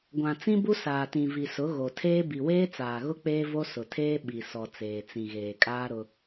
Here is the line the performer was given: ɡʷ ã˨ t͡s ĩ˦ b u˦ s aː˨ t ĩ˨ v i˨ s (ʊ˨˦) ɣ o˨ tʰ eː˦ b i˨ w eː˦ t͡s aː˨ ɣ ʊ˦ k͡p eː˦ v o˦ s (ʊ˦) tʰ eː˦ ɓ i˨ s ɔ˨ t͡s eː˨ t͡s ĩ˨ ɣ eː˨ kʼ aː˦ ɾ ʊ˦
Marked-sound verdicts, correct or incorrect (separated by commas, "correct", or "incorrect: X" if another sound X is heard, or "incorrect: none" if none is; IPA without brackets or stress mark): correct, incorrect: ʊ˨